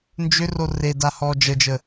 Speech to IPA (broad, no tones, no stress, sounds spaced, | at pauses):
n d͡ʒ ʏ r o r e d a h ɔː d͡ʒ ə d͡ʒ ə